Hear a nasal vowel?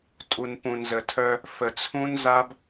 yes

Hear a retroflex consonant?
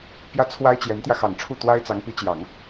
yes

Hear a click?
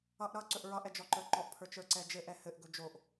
yes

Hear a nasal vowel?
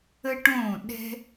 yes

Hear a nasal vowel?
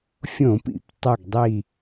yes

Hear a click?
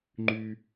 yes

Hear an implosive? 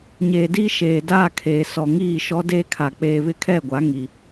no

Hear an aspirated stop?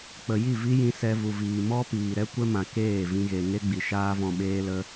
no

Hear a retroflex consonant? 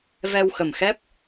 no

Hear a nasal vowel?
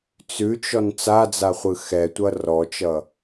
no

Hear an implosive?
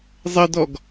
no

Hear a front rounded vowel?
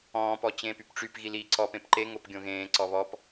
yes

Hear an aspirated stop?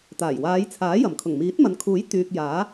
yes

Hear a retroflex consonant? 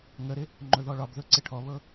yes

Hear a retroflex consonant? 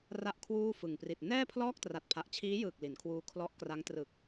no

